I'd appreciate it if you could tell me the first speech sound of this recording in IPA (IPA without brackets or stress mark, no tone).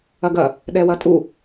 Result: ɐ